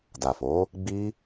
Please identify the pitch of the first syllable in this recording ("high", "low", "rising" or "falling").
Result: low